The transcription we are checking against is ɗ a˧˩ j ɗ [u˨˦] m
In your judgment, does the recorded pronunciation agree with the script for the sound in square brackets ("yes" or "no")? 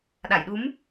yes